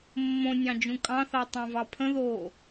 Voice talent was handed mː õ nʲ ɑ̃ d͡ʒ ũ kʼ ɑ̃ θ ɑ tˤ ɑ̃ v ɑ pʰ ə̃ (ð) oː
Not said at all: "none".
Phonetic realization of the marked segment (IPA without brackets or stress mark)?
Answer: ð